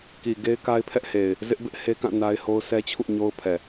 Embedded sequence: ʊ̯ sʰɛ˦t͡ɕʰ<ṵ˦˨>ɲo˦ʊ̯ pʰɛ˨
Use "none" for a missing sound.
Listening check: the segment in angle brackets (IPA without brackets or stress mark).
ṵ˦˨